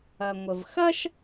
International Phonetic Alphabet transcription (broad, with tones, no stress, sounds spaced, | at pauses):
ɐ˩ ŋʷ ə˩ v x ɐ˥ ʃ